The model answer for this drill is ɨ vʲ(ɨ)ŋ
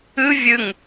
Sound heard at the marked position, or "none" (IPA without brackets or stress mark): ɨ